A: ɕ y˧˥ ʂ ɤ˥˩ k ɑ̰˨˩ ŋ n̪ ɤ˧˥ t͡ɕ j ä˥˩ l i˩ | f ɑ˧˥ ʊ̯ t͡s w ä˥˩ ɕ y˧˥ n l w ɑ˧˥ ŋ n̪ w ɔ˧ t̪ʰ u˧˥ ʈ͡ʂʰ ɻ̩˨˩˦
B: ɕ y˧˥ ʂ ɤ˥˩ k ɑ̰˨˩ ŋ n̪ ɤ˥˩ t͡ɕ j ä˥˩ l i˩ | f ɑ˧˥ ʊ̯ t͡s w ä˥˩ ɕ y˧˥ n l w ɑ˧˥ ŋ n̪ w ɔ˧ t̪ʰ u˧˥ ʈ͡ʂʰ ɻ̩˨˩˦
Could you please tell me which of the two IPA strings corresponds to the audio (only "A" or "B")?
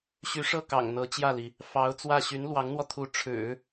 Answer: A